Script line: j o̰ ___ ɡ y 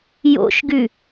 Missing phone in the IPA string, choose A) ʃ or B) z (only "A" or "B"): A